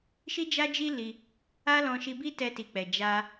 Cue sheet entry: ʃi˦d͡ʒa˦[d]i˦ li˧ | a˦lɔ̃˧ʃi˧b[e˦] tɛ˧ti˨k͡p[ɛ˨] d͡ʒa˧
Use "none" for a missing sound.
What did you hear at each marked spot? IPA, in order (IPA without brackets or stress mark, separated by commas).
d͡ʒ, i˦, ɛ˨